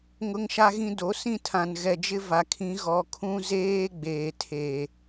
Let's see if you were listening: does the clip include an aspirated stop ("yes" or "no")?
yes